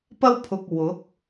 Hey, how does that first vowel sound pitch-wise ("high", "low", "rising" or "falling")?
high